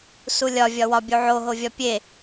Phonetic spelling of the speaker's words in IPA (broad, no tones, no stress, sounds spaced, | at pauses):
s u lʲ ɒ vʲ ɒ w ɒ bʲ u ʕ o ɦ o vʲ ɒ pʲ e